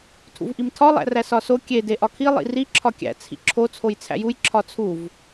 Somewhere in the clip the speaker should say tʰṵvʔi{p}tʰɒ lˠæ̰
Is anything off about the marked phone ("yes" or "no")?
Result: yes